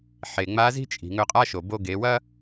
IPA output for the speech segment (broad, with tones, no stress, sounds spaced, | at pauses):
ħ e˩ ŋ͡m a˧˥ z i̤˥ t͡ʃʼ i̤˩ ŋ ɵ˧ qʼ a˥ ʃ o˩ b o˧ ɡ e˩˧ w ɐ˥